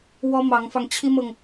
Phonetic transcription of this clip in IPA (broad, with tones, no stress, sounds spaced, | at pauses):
w ɔ˥ m ɑ˧˥ ŋ f ɑ˧ ŋ t͡ɕʰ i˥ m ɤ˨ ŋ